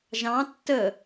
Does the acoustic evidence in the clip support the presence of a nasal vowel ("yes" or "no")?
yes